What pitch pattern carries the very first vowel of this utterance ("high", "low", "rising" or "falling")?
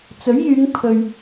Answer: rising